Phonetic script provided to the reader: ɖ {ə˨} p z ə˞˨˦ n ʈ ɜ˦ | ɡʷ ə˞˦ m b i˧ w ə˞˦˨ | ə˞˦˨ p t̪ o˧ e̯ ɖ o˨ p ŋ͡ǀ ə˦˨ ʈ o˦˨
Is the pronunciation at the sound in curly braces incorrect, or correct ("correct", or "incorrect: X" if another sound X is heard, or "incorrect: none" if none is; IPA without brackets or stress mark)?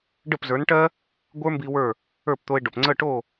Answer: incorrect: ə˦˨